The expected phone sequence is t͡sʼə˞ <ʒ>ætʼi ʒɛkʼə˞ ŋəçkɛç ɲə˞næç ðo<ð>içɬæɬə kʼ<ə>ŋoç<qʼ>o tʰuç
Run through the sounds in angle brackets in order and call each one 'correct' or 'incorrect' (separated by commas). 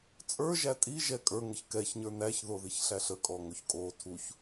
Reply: correct, correct, incorrect, incorrect